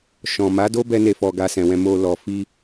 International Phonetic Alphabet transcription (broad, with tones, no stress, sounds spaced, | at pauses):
ʃ ɔ̃˨ m a˨˦ d o˦ b ɛ˦ n e˧ f ɔ˧ ɡ a˧ s ɛ̃˨ w ɛ̃˧ m o˧ l ɔ˨ f i˧